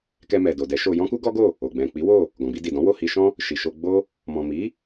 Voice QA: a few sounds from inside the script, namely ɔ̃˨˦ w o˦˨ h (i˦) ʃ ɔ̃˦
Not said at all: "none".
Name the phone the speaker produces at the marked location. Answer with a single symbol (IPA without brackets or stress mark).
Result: i˧